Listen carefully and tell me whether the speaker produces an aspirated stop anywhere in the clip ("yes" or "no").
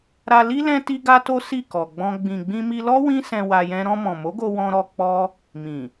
no